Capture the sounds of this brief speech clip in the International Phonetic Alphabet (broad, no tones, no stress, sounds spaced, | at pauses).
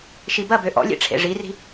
ʃ i b ɐ b ø ʔ ɔ̰ lʲ ḛ ʈ͡ʂʰ ḛ ʐ i r i̤